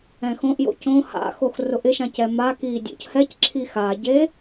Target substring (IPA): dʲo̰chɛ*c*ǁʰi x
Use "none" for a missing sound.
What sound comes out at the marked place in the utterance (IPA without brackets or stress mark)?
c